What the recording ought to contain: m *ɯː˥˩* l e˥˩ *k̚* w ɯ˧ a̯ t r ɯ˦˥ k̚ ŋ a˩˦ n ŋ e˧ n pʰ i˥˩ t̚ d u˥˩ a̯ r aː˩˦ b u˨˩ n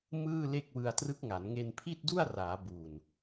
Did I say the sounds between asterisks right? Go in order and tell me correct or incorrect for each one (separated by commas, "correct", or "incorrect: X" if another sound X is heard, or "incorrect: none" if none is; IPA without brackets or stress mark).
correct, correct